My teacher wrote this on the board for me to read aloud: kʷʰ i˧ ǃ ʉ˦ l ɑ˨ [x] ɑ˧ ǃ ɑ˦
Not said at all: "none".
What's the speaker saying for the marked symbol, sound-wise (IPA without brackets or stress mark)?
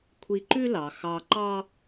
x